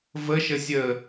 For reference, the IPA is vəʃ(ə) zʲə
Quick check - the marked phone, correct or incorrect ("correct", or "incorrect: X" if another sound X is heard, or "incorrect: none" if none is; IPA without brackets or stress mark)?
correct